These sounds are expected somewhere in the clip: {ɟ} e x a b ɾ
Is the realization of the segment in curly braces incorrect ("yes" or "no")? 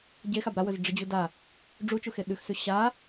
no